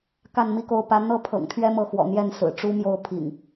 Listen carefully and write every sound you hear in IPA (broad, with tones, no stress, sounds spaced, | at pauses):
k a˥˨ n m i˥˨ k o˥˨ ʊ̯ p ä˦ n̪ ɤ˦ pʰ ɤ̰˨˩ ŋ t̪ʰ ɥ ɛ˦ m ɤ˥˨ x w ɔ̰˨˩ n̪ j ɛ˥˨ n s ɹ̩˨˩ ʈ͡ʂ u˦ m j o˥˨ ʊ̯ pʰ ḭ˨˩ ŋ